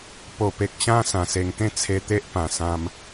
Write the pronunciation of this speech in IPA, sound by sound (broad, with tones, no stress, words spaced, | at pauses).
po˨˩pe˨k̚ ɕã˧ sã˨˩se˨˩ŋt̪ẽ˥˧ t͡sʰe˧t̪e˦ʔpã˨˩ sã˧m